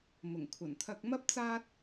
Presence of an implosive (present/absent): absent